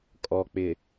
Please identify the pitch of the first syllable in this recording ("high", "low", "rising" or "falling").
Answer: low